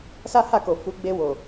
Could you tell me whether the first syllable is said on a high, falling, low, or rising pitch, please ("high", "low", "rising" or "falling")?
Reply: high